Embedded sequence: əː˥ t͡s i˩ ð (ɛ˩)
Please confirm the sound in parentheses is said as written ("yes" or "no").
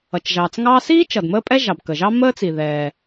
yes